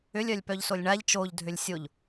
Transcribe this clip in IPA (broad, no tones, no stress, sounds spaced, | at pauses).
ʏ lʲ œ lʲ p œ ʎ s o lʲ ɳ a ʎ t͡ʃ o ʎ dʱ ʏ lʲ sʲ o ʎ